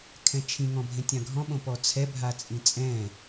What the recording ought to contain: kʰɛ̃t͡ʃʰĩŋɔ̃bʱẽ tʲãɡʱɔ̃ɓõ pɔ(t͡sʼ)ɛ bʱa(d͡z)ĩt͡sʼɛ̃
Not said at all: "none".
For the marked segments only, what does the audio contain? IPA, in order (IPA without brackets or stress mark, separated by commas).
t͡sʰ, t͡sʼ